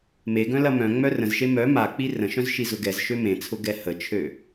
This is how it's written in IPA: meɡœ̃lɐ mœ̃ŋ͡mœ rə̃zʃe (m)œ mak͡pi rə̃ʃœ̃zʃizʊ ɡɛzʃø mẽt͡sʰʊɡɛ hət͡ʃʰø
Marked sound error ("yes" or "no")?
no